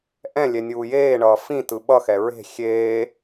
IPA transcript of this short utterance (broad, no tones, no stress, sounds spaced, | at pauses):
ʔ ɛ̃ lʲ ɛ nʲ uː j eː ɳ ʌː f ĩ t ɯ ɓ ʌ x ɛ ɹ e̤ xʲ eː